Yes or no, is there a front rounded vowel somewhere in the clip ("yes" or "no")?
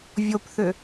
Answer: yes